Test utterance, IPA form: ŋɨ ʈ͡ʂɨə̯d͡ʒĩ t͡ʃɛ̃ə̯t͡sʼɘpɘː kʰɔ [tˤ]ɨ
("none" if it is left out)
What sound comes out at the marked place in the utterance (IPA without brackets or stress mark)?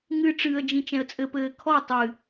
tˤ